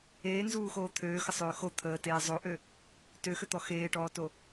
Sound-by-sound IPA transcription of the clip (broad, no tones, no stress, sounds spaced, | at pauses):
eː n z uː x oː t̪ʰ øː x ə sˤ øː x o t̪ʰ əː t eː zˤ o ʔ ø | t ø x ø t̪ ɔ x eː ʈ ɔː t o